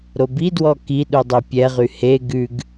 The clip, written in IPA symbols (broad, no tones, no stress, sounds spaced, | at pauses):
ɾ o b i d w ɔ k i ɗ u dˤ e pʲ ɛ ʁ y h e ɡ ʉ ɡ